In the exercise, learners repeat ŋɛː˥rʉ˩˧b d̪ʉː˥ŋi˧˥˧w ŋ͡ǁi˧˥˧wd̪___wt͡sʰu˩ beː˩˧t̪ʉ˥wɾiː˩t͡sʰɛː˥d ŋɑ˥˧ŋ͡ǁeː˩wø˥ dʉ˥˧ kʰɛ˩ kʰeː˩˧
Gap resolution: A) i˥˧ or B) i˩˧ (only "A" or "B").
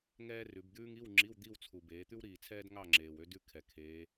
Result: A